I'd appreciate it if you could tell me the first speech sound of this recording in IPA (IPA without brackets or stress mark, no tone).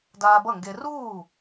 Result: d